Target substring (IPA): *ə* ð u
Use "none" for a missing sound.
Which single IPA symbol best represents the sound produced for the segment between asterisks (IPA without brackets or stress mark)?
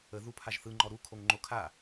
ə